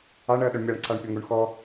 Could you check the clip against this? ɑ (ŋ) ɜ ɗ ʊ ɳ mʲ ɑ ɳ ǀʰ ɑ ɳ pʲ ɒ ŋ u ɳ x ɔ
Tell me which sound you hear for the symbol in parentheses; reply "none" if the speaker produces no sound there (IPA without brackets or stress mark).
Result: ɳ